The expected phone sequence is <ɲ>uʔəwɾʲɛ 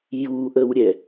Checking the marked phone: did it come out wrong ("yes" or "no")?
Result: yes